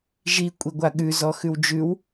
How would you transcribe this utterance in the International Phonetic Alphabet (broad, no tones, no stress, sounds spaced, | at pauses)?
ʒ i kʷʼ i ɡʷ a ɠ ʉ z ɔ x ʉ w d͡ʒ ʉ w